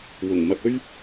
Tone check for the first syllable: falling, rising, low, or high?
low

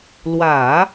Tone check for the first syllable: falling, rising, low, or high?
low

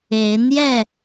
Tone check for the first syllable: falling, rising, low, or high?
rising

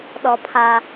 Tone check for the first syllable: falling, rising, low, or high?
low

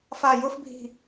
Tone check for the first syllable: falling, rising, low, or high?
falling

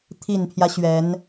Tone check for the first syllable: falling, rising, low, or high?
low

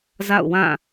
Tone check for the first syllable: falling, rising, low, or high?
falling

